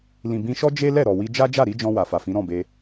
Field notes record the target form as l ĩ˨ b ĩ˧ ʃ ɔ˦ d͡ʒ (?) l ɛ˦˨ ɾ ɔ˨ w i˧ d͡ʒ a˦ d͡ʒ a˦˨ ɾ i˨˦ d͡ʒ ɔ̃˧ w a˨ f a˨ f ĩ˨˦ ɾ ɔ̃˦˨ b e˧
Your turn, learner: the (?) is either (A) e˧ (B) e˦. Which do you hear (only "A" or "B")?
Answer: B